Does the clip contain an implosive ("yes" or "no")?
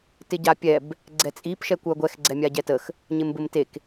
no